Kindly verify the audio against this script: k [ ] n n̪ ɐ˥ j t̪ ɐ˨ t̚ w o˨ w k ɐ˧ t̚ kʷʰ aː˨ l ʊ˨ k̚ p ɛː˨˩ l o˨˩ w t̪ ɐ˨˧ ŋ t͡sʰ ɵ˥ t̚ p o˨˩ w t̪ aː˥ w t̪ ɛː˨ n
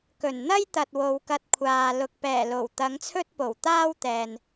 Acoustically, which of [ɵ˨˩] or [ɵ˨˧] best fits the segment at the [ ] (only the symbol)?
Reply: ɵ˨˩